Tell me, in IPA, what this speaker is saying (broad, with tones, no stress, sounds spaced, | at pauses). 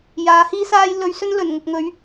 j aː˨˧ h iː˥ s aː˥ j l ɵ˧ ɥ s ɵ˥ n l ɵ˨˩ n ŋ ʊ˨ k̚ ŋ ɵ˨˧ ɥ